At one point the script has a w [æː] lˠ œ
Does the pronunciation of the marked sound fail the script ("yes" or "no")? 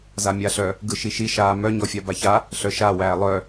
no